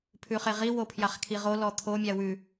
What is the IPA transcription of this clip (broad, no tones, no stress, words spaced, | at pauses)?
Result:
pʰʉχeʁi wopʰjaχkʰiʁo lɔt̪ʰo mʲawʉ